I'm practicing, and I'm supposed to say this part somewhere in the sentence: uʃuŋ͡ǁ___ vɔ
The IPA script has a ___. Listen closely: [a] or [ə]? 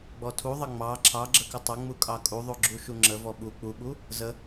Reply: ə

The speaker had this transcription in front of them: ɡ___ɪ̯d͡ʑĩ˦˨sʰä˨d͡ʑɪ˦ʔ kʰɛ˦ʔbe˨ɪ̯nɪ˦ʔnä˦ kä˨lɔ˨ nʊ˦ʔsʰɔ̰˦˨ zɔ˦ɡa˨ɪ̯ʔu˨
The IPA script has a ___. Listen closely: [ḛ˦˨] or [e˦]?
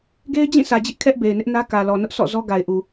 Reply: e˦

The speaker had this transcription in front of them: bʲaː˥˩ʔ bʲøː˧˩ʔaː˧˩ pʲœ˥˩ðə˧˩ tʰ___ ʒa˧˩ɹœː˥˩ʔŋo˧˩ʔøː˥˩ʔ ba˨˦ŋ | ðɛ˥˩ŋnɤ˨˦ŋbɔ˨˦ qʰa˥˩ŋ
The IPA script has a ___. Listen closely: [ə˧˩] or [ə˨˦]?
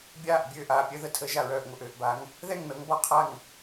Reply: ə˨˦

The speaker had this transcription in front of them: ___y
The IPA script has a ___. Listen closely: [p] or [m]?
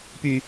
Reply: p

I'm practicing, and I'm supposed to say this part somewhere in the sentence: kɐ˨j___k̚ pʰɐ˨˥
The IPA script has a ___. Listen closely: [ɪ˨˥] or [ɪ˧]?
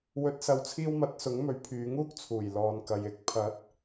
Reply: ɪ˨˥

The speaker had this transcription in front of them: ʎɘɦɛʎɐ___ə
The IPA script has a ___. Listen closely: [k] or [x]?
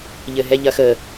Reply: x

